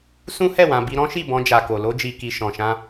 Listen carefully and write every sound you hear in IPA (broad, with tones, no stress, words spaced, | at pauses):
sũ˦hɛ˦˨wã˨ bi˧ɾɔ̃˦ʃi˦˨ bɔ̃˧d͡ʒa˨ko˨ lo˧d͡ʒi˨ki˨ ʃɔ̃˨ʃã˧